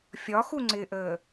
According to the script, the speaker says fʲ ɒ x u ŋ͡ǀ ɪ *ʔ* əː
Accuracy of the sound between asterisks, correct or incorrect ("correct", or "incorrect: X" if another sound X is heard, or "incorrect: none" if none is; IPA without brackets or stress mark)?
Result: correct